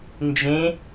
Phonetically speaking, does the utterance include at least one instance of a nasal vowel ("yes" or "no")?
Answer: yes